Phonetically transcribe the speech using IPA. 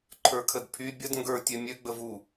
ǃʰ ə˞ kʰ ə d pʰ y bʲ ə d ŋ ɡ ə˞ tʲ ø mʲ ø ɡ͡b ə v u

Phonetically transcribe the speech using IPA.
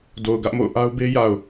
d o˨ ʊ̯ ɡ ä˦ ʔ m o̰˦˨ ʊ̯ ʔ a˦ ʊ̯ b e˦ j a˨ ʊ̯

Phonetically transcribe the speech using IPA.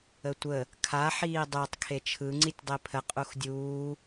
ə tʷ ə | kʰ a ħ iː dˤ e tˤ kʰ e t͡ʃʰ ɯ ŋ͡ǀ i tʲ dˤ e pʰ ə qʼ u x dʲ uː

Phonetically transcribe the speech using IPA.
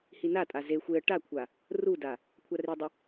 h i n a tʼ a z e xʷ e ə̯ ʈ a kʷʰ a | r u d a | kʷʰ a r i dˤ ɪ

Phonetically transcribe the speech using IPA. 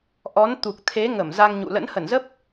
ʔ ɔ˨˦ n t̪ u˨˩ k̚ t̪ʰ e˨˦ ŋ ə˧˩ m z a˧ ŋ ɲ ṵ˧˨ l ə̰˧˥ n h ə˧˩ n z ə˦˥ p̚

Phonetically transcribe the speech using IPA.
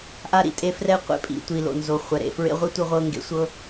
ʔ a˧ ɾ ḭ˨ tʼ e˧ f r ɛ˦ qʷ ḛ˧ pʼ ḭ˨ tʷ i˨ l o̰˨ n z o˨ χʷ ɛ˨ ɾ ḛ˨ f ɹ ḛ˦ ʁʷ i˦ tʷ ɯ˧ ʁʷ ɤ˧ ŋ ɡ ḛ˨˦ sʷ ɤ˦

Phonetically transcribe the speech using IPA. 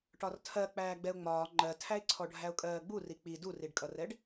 ʈ ɒ r tʰ ɜ k͡p æː ɡ͡b ɛ ʊ̯ ŋ͡m ɒː ŋ͡ǃ ɜ tʰ æ ɪ̯ ǀʰ ɔ ɖʱ æ ʊ̯ kʼ ɜː ɡ͡b u r i k͡p i d u r i ɖ kʼ ʌ r ɛ ɖ

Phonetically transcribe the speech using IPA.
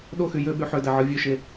ɗ o x y j ø ɓ y ħ ø d æ ʕ ɯ vʲ ø ʃ e

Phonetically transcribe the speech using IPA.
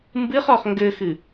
m b ɨ χ ɔ χ ŋ ɡ ɘ x ɨ

